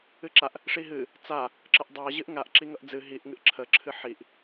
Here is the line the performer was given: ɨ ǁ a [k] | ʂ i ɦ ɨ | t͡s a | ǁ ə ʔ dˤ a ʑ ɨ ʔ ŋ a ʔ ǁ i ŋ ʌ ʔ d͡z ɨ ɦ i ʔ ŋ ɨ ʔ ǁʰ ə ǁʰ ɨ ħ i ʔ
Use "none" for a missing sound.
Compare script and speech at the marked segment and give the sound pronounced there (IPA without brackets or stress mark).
ʔ